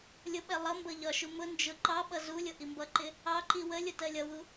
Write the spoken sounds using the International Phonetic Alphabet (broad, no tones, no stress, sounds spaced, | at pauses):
lʲ ʊ ɓ ɛ lˠ ʌ m b ʌ ʎ ɒ ʃ u m ʊ n d͡ʒ ʊ ǃ ɑ ɓ ʌ z u lʲ ʊ ʔ i m b ʌ ǃ ɪ | ɑ ǃ i w ə lʲ ʊ t ɜ lʲ ʌ w u